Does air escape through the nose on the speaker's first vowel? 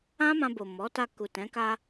yes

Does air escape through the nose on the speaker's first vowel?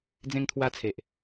yes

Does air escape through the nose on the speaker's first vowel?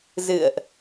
no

